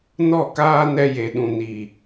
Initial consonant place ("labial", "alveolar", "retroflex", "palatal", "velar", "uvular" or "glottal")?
alveolar